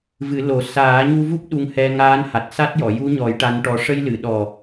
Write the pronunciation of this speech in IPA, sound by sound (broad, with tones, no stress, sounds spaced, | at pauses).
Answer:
v ɨ˨˩˦ l o˨˩˦ s aː˨˩˦ ɲ u˧ v u˦˥ p̚ ɗ u˧ ŋ h ɛ˧ ŋ aː˧˥ n h a˨˩ t̚ s a˦˥ t̚ j ɔ˨˩˨ j u˧˥ ɲ ɔ˨˩˦ j ʈ a˧˥ n ʈ ɔ˧ ʂ ə˧ j l ɨ˨˩˨ ɗ ɔ˨˩